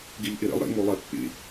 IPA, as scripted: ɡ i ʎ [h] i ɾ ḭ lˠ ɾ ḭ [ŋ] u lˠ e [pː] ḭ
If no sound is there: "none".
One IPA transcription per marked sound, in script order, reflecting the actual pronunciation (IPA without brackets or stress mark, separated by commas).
ʔ, ŋ, pː